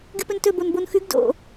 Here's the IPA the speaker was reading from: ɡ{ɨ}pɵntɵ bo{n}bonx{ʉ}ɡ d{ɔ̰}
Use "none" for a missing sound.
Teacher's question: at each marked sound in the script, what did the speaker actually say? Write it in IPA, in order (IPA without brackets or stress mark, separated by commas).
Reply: ɨ, n, ʉ, o̰